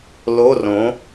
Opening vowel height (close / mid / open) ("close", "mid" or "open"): mid